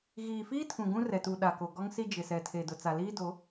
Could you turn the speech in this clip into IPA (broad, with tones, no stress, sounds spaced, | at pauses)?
ɣ iː˨ f iː˦ tʰ ũ˨ ɡ ũ˦ r ɛ˨ t u˨ ɗ a˨ k o˨ ɡ ɔ˦ ŋ s i˦ d͡ʒ ɪ˨ s ɛ˨ tʰ e˨ d ʊ˨ t͡s a˨ l iː˦ d o˨˦